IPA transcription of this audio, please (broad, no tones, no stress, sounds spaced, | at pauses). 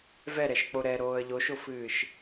v ɛ ɾ ɛ ʃ k͡p o ɾ ɛ ɾ oː ə̯ ʎ o ʃ o f ɨː ʃ